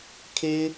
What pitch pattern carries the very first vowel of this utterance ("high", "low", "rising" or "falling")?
high